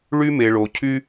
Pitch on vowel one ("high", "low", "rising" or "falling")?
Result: high